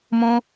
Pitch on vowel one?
high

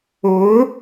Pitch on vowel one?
rising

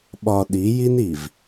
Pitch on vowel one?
low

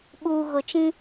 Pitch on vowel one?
low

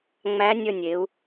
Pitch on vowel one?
rising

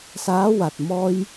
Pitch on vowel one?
rising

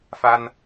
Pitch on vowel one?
high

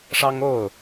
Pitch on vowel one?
high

